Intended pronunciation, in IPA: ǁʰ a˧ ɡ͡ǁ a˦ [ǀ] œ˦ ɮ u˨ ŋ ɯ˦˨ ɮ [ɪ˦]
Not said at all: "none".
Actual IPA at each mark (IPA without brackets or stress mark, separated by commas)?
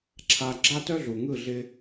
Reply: t, ɪ˦